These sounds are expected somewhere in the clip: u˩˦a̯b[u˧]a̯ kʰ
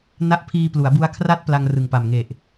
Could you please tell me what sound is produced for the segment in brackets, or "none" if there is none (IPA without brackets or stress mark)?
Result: u˦˥